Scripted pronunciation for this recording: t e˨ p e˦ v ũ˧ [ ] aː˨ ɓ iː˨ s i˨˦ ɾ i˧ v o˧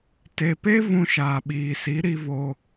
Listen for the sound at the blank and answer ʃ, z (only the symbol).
ʃ